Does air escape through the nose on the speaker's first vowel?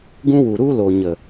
yes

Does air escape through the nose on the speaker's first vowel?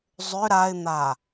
no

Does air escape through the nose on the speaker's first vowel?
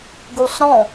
no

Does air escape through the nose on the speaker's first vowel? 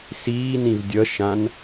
no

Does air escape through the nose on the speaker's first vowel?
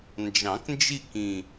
yes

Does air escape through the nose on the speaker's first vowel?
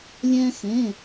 yes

